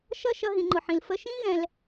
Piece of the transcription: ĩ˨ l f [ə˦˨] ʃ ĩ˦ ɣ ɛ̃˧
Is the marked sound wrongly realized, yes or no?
yes